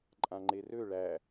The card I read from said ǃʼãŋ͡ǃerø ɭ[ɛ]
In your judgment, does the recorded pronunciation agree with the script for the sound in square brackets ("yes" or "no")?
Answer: no